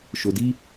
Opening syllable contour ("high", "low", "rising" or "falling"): low